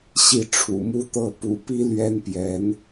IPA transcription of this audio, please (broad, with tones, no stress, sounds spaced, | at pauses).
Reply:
ɕ i˥˩ ʈ͡ʂʰ ṵ˨˩ m u˥ t̪ ɤ˥˩ p ṵ˨˩ p i˥ l ɥ ɛ˥ n p j ɛ˧˥ n